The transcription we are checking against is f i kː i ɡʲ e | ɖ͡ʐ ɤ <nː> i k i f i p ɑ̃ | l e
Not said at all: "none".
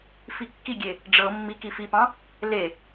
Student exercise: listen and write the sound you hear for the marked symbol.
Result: mː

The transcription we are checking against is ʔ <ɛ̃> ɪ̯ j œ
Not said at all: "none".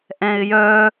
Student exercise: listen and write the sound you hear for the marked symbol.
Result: ɛ̃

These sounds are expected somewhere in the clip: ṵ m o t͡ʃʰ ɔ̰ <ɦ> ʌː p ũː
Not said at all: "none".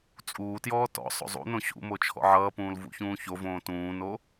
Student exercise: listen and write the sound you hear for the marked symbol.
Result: ʕ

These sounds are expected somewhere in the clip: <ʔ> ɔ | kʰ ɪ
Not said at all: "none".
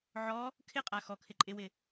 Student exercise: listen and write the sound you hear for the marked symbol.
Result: ʕ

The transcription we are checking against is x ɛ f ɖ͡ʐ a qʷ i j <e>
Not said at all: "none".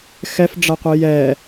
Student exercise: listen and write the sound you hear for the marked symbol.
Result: ɛ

